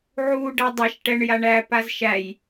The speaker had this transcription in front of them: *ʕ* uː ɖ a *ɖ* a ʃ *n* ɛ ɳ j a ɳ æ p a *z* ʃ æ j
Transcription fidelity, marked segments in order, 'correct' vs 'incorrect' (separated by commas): correct, incorrect, incorrect, correct